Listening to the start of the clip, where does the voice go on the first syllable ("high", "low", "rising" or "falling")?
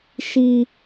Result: high